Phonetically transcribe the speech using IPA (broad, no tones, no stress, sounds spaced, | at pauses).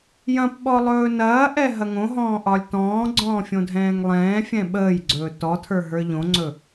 j ɐ̃ p ɓ ɔ lˠ ɵː n ɐː ʔ ɛ ɦ ɐ ŋ õ ɦ ɔ̃ː ʔ ɒ lʲ t ɔ̃ː ɡ͡ǀ ɔ̃ː fʲ õ dʱ ɛ̃ː ŋ lˠ ɛ̃ː fʲ ɛ̃ ɓ əː j ɡ͡ǀ ɵː t ɔ tʰ ə˞ ɦ ə˞ ʎ õ ŋ͡ǀ ɵ